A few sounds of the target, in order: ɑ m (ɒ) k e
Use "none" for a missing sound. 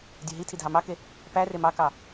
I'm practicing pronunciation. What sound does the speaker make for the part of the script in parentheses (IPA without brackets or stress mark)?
ɑ